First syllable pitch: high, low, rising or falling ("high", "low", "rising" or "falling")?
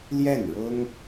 falling